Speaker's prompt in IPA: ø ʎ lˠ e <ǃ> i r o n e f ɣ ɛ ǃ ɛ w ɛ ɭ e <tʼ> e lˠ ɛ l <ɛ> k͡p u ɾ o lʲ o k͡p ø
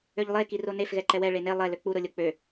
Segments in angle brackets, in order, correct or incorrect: incorrect, incorrect, incorrect

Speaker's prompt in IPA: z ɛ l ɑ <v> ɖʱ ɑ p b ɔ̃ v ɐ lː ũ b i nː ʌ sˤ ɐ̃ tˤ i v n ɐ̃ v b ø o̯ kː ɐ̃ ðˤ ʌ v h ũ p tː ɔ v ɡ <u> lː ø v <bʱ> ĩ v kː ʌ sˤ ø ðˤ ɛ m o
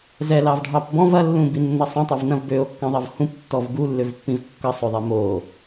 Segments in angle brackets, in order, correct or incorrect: correct, correct, incorrect

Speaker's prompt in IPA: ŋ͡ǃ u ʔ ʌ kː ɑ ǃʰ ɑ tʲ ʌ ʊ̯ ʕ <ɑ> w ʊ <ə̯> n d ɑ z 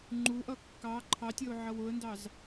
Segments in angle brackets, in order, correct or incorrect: incorrect, correct

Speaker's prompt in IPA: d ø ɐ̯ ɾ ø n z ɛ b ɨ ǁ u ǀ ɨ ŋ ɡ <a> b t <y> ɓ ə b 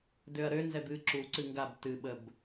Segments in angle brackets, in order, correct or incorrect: correct, incorrect

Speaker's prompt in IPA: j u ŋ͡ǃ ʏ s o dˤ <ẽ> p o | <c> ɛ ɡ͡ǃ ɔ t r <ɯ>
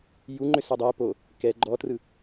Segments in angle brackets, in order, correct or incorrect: incorrect, incorrect, correct

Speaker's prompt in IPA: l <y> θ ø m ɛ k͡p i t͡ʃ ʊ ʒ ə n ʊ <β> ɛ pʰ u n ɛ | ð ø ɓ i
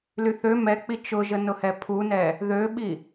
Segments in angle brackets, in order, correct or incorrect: correct, incorrect

